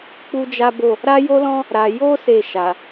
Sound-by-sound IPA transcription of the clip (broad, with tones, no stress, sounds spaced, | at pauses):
k͡p u˦ d͡ʒ a˦ b o˦˨ | ɾ a˦ j o˦ l ɔ̃˦ | ɾ a˧ j o˦ s e˦˨ ʃ a˨